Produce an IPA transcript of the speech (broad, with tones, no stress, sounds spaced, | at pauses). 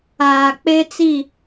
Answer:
aː˨ k͡p e˦ t͡s i˦˨